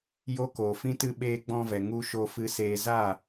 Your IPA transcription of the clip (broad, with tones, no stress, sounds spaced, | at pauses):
j o˦ k oː˨ f ĩ˧ t ɨ˧ ɓ eː˧ ɡ͡b ɔ̃˧ v ɛ˨ ŋ u˧ ʃ o˧ f ɨ˧ s eː˧ z aː˦˨